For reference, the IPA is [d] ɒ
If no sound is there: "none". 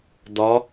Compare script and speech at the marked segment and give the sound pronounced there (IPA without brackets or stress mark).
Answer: d